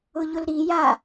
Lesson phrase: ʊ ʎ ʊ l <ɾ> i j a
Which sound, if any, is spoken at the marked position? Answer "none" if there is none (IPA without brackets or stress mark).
ɾ